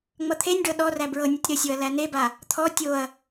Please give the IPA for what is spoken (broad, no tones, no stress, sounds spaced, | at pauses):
ŋ͡m ʌ t̪ʰ e nʲ ɖ ɤ ɗ ɔ r æ b ɹ ɤ nʲ ɤ tʲ ɾ ə sʲ o ɐ̯ l æ n e b a | t̪ʰ ɔ tʲ o ɐ̯